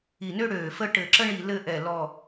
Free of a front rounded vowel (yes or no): no